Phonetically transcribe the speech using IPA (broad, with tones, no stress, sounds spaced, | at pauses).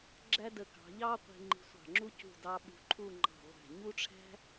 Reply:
ɡ͡ǁ æ˥ d ə˧ k ɑ̤˩˧ ʎ ɑ˥ qʷ i̤˧ ŋ͡ǃ i̤˧ sʷ ɑ̤˧˩ ŋ͡ǁ u˥ c ṳ˧˩ d ɑ˧ ɓ ṳ˧ ǃʰ u˥˧ ŋ͡ǃ ɑ̤˧˩ ʁʷ æ̤˧˩ ɲ u˥ ʈ͡ʂʰ æ̤˥